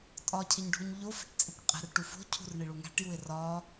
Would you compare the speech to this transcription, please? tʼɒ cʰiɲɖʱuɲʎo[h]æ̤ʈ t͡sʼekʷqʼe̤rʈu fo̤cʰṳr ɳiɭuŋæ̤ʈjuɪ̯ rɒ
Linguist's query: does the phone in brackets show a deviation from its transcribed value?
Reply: yes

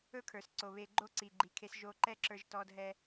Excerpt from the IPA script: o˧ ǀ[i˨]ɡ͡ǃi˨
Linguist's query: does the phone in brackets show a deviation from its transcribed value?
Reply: no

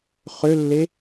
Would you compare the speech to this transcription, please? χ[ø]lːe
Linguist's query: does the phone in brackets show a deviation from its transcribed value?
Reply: no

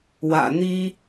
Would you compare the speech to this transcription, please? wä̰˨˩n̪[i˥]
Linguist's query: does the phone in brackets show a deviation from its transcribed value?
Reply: no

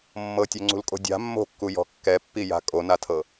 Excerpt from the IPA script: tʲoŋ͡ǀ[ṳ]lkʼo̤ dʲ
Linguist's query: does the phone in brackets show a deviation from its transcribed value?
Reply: no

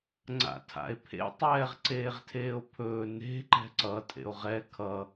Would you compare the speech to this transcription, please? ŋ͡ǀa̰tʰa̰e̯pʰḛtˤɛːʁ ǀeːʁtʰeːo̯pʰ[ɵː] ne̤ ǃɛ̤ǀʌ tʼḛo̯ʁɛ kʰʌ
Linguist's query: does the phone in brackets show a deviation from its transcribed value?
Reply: no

